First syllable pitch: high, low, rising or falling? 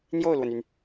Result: falling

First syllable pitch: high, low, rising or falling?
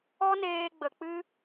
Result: high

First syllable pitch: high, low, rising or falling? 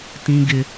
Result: high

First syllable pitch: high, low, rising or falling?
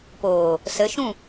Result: low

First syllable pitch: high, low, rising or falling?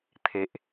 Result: low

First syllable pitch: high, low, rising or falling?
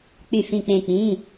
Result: falling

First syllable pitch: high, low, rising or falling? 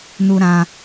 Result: high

